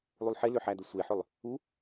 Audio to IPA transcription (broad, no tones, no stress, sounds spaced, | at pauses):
lˠ u lˠ ħ e l ʏ ħ æ d ə sʷ e ħ ʏ lˠ | u